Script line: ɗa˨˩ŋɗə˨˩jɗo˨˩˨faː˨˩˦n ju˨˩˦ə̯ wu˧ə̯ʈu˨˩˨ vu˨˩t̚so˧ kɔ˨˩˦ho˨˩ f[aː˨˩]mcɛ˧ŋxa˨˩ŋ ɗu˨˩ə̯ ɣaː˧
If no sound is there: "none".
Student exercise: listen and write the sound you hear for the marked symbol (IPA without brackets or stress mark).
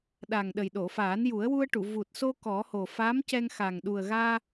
aː˧˥